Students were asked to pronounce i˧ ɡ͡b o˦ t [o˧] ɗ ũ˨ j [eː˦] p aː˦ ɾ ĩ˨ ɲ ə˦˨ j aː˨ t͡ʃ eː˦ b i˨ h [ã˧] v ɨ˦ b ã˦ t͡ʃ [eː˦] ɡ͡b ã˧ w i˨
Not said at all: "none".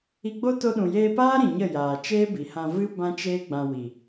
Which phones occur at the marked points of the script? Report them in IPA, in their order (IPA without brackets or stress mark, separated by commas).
o˧, eː˧, ã˧, eː˦